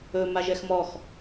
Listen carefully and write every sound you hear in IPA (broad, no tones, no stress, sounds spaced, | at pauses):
ɵ m a ʒ ɛ x m ɔ x